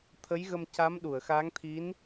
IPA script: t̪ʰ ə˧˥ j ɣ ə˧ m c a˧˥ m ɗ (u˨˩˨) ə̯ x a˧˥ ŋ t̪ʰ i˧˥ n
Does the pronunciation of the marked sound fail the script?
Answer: no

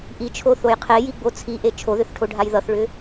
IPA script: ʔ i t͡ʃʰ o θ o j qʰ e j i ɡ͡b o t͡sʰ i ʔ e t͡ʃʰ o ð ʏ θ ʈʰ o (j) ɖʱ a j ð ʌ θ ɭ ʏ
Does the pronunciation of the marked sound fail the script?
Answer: yes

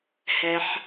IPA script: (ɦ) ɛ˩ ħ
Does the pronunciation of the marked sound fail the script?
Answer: yes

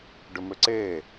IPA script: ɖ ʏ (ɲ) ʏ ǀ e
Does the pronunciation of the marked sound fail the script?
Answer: yes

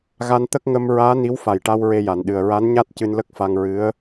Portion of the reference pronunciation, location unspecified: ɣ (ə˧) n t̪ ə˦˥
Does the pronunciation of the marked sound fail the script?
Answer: yes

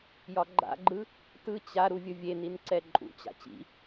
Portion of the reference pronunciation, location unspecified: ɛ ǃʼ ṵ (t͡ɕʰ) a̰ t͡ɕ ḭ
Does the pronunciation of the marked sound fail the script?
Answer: yes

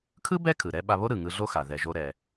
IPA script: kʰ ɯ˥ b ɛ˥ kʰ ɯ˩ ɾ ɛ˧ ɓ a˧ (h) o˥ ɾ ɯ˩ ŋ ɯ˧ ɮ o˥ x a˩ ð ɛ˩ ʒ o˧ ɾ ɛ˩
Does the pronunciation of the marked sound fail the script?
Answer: yes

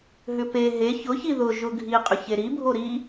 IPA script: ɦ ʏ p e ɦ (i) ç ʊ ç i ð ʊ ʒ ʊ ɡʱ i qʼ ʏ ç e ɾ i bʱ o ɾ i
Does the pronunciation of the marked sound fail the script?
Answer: yes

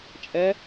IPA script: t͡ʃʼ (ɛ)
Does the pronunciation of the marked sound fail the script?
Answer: no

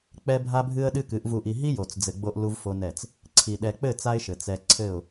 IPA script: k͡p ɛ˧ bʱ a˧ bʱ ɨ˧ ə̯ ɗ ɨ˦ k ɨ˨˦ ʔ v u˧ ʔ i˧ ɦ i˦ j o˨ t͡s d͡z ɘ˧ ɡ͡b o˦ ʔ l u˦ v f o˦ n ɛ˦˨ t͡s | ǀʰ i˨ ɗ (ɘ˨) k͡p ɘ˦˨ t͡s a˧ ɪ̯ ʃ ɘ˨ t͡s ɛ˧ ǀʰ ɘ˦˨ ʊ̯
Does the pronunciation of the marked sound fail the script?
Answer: yes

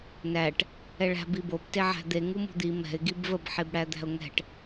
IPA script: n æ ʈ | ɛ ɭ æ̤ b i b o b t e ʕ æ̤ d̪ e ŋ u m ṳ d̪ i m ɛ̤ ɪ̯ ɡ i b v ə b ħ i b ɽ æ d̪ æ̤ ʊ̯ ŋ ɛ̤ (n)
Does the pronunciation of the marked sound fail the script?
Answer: yes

